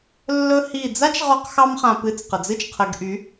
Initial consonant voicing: voiced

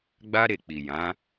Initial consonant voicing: voiced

